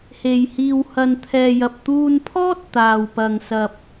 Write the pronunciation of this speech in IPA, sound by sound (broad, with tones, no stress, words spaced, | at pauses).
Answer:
he˨j hiː˨whɐ˨nt̪ʰɛː˨jɐ˨p̚ t̪uː˧npʰɔː˥t̚ t̪aː˨wpɐ˨ŋ sɐ˨p̚